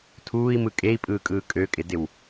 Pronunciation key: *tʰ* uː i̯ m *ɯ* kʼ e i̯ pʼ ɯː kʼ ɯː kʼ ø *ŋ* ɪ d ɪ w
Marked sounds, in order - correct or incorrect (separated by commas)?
correct, correct, incorrect